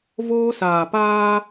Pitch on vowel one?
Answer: high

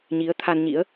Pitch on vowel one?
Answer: rising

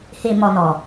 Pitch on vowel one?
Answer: low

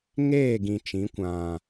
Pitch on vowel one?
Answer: falling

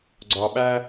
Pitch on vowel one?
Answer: low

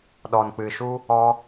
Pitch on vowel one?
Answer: low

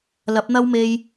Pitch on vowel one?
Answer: rising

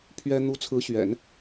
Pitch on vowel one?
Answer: high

